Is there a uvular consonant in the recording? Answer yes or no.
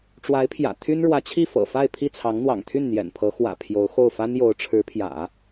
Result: no